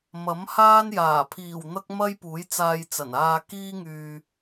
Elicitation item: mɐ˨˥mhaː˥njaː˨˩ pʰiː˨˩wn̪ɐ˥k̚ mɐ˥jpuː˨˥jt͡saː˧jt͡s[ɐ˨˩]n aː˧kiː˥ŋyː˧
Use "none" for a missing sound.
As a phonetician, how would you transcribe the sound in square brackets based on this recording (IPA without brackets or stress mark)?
ɐ˨˩